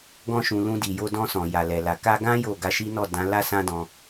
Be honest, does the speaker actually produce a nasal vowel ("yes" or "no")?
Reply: yes